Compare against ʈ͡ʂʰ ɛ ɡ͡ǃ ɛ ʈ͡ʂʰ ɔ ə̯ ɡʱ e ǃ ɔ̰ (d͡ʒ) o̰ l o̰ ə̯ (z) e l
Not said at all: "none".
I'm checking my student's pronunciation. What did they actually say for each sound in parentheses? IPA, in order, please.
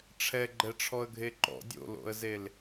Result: dʲ, z

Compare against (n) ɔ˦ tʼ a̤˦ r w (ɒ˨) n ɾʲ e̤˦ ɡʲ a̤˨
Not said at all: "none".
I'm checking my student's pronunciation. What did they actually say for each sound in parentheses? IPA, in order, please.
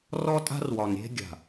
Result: r, ɒ˨

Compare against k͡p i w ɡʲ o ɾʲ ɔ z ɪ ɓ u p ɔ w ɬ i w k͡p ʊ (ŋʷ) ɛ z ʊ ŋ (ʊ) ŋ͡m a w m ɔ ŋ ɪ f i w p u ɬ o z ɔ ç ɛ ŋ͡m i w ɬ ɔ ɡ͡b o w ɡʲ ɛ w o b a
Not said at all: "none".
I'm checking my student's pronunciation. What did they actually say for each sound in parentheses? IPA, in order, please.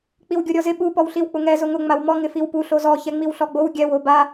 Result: ŋ, ʊ

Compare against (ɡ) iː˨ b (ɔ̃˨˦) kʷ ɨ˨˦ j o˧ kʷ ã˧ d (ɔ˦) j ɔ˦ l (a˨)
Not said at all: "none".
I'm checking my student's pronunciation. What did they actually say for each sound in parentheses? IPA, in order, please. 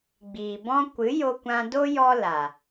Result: ɡ͡b, ɔ̃˦, o˦, a˨

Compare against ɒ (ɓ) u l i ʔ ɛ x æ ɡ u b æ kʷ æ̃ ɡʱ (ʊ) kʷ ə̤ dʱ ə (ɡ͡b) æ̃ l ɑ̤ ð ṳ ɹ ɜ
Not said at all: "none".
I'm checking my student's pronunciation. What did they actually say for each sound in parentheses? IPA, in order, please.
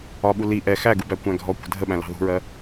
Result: ɓ, ɔ, ɓ

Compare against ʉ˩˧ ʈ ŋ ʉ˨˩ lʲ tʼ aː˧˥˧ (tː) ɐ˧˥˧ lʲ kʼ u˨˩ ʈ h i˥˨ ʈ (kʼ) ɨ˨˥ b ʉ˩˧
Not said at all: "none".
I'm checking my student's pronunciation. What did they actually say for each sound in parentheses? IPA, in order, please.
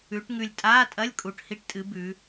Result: tʼ, tʼ

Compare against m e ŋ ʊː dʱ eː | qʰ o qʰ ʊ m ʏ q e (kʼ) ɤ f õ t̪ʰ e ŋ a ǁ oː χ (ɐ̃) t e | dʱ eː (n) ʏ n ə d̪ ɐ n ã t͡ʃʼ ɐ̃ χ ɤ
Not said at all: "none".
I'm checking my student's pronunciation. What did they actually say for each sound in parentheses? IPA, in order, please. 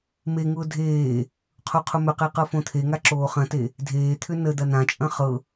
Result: q, ɐ̃, t̪ʰ

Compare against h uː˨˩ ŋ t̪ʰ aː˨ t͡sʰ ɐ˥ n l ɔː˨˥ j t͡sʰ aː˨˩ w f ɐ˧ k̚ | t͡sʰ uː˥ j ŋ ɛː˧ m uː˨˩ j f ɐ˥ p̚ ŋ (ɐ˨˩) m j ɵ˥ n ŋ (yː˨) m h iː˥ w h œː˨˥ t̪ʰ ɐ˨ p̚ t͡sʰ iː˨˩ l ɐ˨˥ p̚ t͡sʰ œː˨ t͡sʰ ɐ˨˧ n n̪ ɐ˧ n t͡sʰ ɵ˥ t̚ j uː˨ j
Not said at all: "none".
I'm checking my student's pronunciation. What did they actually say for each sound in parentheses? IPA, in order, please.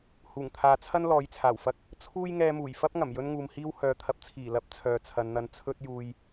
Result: ɐ˨˩, uː˨

